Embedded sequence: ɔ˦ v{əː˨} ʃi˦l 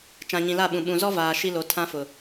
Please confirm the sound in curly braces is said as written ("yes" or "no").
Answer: no